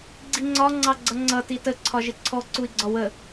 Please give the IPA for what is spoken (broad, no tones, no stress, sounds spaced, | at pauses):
ɡ͡ǀ i ŋ͡ǀ ɒ ŋ͡ǀ ɑ ɡ͡ǀ ʌ ŋ͡ǀ ʌ t i t ə ǀʰ ɒ ʒ ɪ ǀʰ ɔ ǀ u i̯ ɡ͡ǀ ɒ w ə